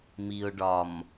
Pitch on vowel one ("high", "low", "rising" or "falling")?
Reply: low